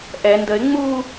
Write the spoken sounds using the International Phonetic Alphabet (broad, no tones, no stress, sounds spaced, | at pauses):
ʔ ɛ n d ə ɪ̯ ŋ͡m u